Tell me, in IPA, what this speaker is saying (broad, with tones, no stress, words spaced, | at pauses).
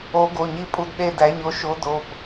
o˨˥ɡo˩˧˩ɲi˦˨ pʼu˦˨dɗe˦˨dæ˨˥ɲo˨˥ ʃo˨˥do˩˧˩p